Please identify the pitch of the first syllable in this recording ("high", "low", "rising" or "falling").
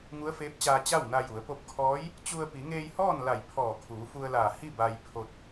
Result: rising